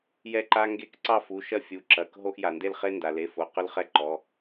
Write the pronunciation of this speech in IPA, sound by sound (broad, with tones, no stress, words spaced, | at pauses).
jɛ˦ǃa˦ ŋɡe˦k ǀɑ˥˨fu˩˧˩ʃɐ˥˨ fʲu˩˧˩ ǁɐ˩˧˩k ɦo˦ʔ ja˩nde˥˨lχe˦ nda˩le˩˧˩fo˩˧˩ qʊ˦lχɛ˦ ǃɔ˩˧˩